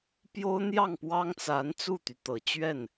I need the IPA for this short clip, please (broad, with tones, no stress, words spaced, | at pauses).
pjo˥ʊ̯n̪jɑ˥˩ŋpwɑ˥ŋt͡sa˧˥n t͡su˥˩t̪y˩t̪ɤ˨˩t͡ɕɥɛ˥˩n